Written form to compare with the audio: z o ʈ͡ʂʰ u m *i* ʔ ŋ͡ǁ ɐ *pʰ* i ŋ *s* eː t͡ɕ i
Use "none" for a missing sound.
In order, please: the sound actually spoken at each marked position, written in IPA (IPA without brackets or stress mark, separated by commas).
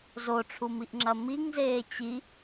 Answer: i, m, z